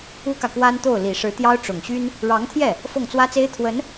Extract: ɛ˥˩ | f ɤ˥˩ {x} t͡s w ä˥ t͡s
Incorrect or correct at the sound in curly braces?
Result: incorrect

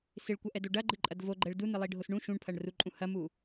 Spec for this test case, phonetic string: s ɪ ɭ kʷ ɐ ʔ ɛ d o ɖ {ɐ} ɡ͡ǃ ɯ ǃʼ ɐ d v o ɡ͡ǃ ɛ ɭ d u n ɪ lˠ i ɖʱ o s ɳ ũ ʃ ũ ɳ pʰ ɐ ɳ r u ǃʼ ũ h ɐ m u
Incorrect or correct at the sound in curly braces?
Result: correct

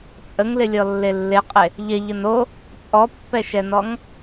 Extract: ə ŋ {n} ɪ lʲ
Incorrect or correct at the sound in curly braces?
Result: incorrect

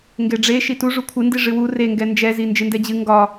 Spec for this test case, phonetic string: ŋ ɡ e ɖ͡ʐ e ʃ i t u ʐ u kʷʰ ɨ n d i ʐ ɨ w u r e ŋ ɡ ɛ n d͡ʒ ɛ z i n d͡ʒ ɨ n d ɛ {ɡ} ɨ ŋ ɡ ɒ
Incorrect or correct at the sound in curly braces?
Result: incorrect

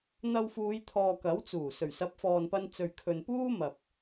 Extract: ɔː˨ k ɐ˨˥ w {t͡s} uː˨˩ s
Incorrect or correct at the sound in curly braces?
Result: correct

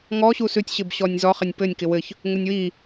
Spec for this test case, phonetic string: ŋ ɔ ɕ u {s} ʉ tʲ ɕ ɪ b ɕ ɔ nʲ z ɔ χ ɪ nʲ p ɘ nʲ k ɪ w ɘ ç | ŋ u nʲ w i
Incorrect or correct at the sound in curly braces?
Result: correct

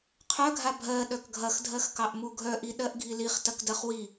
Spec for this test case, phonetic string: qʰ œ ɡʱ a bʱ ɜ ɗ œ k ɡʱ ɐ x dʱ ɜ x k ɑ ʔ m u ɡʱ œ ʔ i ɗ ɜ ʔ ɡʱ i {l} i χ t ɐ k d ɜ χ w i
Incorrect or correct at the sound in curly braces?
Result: correct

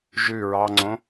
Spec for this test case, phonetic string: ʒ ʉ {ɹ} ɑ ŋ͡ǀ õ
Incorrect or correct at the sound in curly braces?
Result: correct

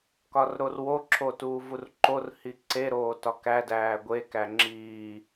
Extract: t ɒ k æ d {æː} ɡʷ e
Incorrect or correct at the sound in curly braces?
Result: correct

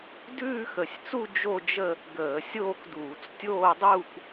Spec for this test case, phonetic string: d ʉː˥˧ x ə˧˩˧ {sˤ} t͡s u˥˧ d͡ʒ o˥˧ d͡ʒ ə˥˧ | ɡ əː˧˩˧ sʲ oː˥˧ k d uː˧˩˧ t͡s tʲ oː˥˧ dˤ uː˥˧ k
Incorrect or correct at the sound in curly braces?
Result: incorrect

